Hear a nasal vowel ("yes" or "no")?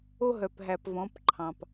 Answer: yes